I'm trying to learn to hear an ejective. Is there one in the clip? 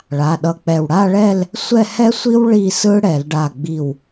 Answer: no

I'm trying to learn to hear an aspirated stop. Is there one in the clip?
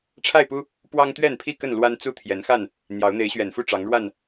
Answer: yes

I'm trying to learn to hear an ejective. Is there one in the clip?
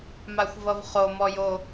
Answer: no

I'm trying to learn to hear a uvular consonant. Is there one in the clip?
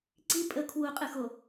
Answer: yes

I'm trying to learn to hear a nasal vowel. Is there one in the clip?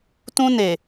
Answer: yes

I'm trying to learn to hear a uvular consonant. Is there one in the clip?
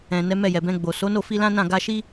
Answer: no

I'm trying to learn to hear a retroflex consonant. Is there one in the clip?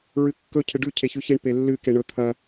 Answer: yes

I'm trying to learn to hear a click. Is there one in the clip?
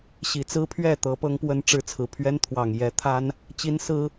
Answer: no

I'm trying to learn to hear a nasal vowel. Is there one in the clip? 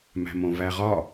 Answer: yes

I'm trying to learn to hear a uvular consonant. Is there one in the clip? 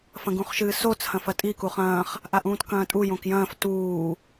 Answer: yes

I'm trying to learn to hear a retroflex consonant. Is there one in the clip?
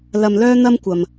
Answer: no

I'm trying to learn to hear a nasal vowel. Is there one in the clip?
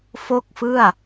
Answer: no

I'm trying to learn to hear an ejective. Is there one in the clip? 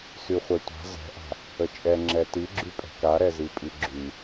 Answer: yes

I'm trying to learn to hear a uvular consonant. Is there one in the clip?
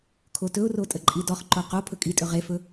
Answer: yes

